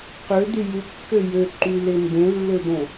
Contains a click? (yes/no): yes